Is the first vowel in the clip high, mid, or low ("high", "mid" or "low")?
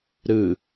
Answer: high